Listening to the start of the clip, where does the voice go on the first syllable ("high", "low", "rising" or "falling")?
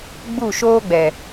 falling